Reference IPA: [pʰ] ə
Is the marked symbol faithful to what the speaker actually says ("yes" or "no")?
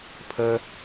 yes